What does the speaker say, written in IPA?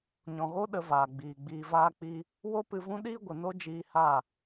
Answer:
ɲ ɔ̃˨ ɣ o˦ ɗ ə˧ v aː˨ ɡ͡b iː˨ ɡ͡b iː˨ v aː˧ k͡p i˧ | w o˦ p ɨ˧ v ũ˦ ɗ iː˦ ɡʷ ə˨ n o˦ d͡ʒ iː˧ h a˦˨

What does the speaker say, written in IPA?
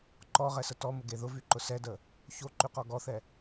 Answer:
ǃ ɔ ʁ ɛ s ə t ɔ m ə ɡ e ð ʊ v y ǃ ʊ s ɛ d ə | ç o ǃ y q ɔ ɡ ɔ θ ɛ

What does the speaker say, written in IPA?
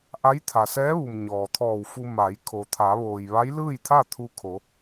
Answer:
ʔ a˧˥ j t̪ʰ a˩ s ɛː˧˥ ʋ u˩ m ɲ ɔː˩ t̪ʰ ɔː˧˩ w f u˧ m a˩˧ j kʰ o˩ t̪ʰ a˩˧ ʋ oː˩ j ʋ a˧˥ j l ɯː˥˨ j t̪ʰ a˥˨ t̪ʰ u˧ kʰ o˩˧

